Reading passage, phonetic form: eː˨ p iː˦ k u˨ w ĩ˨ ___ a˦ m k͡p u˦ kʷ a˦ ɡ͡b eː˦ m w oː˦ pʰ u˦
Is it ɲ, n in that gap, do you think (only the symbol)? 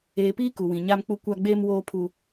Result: ɲ